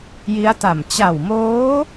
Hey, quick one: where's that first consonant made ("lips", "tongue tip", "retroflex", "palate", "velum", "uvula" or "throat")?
palate